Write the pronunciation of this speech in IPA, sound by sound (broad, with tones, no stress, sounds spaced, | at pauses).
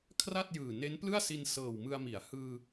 kʰ r a˥˩ t̚ j ɯː˨˩ n e˦˥ n p l ɯ˥˩ a̯ s i˧ n s ɤː˨˩ w m ɯ˧ a̯ m i˩˦ a̯ h ɯː˧